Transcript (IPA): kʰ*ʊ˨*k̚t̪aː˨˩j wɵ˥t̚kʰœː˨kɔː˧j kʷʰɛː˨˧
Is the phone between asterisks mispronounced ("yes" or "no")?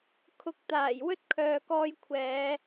no